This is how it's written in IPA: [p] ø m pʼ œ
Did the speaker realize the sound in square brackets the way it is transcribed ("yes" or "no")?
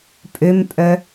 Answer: no